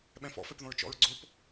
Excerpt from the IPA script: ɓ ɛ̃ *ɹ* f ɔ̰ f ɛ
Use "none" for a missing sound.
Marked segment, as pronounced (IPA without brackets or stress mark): none